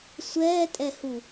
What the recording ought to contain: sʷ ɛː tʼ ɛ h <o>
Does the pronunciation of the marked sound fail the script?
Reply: yes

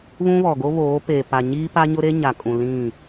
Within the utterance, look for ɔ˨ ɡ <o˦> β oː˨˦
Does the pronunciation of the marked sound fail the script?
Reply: no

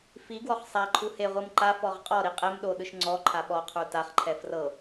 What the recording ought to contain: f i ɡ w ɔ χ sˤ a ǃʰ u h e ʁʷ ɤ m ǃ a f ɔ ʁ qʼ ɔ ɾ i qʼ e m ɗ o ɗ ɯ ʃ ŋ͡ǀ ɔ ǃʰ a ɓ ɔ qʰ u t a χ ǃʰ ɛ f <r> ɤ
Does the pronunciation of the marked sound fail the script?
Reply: no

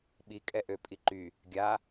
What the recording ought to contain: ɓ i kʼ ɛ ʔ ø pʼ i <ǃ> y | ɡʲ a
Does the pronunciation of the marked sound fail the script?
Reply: no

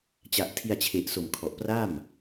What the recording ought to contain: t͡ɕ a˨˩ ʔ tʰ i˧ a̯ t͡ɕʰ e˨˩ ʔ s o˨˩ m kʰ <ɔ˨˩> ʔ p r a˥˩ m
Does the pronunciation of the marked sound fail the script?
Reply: no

